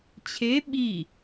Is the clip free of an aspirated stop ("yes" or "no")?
no